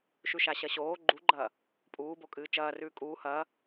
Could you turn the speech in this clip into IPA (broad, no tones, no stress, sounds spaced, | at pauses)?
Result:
ʃ ʉ ʃ a ɕ ɐ ɕ oː ɡ͡ǃ u ɡ͡ǃ ɐː | pʼ uː b o kʼ ɨː t͡ʃ ɐː r ʉː kʼ uː h ɐː